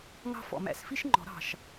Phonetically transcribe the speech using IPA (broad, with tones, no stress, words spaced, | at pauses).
ŋɑ̤˦˨ fɔ̰˨˩mæ̰˨˩˦sfi˥ʃ ŋ͡ǃɔ̤˨˩˦ɾɑ̤˨˩ʃ